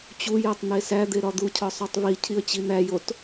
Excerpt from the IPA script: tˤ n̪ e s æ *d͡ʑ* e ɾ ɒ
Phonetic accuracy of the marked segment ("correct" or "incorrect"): incorrect